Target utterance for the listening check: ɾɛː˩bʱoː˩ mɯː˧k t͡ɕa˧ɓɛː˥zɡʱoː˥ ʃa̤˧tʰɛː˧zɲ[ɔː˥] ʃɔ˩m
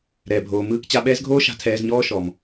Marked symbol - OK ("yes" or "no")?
yes